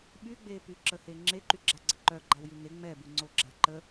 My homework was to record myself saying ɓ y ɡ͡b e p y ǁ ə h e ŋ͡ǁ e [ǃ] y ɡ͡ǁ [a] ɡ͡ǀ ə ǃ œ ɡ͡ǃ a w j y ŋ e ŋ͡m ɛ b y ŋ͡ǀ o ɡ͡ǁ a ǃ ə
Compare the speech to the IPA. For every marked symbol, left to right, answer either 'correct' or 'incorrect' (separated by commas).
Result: correct, correct